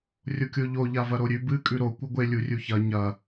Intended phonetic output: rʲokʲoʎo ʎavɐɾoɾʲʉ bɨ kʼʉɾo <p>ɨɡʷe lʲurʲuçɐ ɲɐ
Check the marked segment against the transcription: incorrect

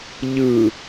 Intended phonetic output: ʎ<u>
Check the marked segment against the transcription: incorrect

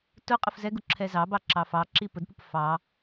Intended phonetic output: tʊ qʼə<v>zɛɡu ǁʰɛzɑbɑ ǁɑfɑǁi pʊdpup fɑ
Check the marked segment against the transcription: incorrect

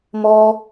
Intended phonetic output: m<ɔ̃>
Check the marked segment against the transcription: incorrect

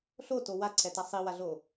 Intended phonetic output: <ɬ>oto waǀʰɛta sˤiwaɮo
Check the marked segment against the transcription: correct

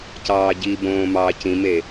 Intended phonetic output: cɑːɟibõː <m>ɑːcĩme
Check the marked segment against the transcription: correct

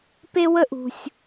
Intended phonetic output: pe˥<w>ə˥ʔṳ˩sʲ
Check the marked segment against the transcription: correct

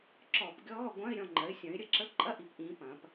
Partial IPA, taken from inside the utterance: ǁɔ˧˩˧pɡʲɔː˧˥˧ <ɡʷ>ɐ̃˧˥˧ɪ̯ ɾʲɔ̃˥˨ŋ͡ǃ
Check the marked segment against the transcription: correct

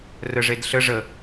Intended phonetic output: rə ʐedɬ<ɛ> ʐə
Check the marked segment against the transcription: incorrect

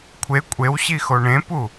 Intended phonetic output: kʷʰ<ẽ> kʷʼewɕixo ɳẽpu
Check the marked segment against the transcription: incorrect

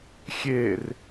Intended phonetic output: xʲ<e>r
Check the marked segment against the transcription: correct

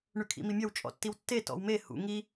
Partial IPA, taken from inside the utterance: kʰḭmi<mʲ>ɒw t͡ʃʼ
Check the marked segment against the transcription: correct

